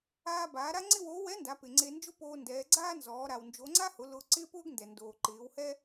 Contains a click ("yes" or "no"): yes